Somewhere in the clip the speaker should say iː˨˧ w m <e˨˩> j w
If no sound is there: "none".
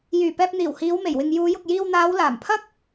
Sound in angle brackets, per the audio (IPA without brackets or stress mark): e˨˩